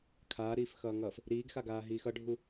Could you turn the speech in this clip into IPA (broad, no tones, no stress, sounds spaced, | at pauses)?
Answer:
kʰ aː ɾ iː f x ʌː ŋ ʌː f | ɾ iː ɡ x a ɡ aː ɦ iː x ʌ ɖʱ u